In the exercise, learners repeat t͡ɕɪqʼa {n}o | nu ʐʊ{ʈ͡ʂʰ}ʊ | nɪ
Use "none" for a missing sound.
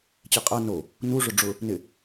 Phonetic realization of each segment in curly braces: n, ɖ͡ʐ

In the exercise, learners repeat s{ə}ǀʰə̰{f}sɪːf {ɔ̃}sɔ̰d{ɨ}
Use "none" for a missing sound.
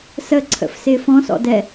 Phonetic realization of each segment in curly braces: ə, f, ɔ̃, ɛ

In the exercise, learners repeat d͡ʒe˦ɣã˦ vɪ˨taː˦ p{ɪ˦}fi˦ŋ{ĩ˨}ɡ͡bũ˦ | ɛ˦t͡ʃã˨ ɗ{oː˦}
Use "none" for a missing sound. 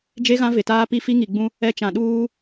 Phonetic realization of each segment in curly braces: i˦, i˨, uː˦

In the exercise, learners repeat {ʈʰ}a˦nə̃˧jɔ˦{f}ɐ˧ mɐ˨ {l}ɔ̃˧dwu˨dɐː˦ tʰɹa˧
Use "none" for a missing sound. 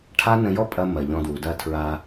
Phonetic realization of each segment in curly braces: ʈʰ, pʼ, ʎ

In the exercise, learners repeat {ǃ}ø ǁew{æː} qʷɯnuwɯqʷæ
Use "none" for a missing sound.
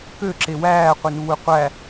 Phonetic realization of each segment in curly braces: k, æː

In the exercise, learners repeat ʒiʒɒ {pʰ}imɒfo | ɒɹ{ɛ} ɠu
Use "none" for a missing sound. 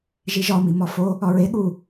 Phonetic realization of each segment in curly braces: m, e

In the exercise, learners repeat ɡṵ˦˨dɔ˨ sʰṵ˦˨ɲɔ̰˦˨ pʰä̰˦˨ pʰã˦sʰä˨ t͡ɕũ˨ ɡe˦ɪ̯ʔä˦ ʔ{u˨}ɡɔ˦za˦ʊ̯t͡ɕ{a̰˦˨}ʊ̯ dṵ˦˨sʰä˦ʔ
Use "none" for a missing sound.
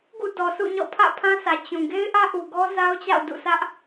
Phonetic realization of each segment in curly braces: u˨, a̰˦˨

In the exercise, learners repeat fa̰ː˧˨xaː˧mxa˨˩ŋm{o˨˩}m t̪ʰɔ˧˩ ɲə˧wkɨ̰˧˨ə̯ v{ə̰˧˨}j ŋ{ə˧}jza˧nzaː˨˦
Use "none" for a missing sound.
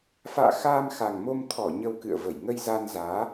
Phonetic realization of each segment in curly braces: o˧, ə˧˩, ə˧

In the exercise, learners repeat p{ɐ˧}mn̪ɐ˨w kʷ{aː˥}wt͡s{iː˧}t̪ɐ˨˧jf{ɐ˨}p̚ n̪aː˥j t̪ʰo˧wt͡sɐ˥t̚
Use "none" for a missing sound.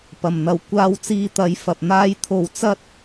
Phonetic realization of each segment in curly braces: ɐ˨˩, aː˧, iː˧, ɐ˨

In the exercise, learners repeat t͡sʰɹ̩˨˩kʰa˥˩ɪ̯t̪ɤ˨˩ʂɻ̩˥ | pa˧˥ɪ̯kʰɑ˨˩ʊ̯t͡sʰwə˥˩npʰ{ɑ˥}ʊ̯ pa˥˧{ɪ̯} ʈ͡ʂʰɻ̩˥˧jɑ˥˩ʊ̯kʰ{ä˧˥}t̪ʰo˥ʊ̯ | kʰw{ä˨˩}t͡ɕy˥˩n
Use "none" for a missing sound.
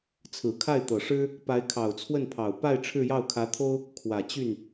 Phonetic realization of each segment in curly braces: ɑ˨˩, ɪ̯, ä˧˥, ä˨˩

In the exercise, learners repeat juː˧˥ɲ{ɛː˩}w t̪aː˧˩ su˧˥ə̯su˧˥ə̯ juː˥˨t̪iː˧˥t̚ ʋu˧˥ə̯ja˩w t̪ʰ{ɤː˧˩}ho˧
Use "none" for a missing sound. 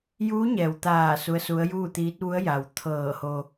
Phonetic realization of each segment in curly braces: ɛː˩, ɤː˧˩

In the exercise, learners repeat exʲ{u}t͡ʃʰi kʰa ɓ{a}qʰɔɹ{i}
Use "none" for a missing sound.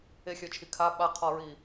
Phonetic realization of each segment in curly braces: ø, a, i

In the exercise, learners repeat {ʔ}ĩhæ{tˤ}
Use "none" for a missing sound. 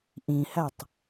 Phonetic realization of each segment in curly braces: ʔ, tˤ

